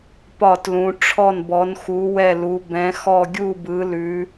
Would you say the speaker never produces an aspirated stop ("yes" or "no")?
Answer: no